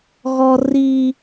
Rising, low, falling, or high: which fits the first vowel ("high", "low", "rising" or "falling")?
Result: high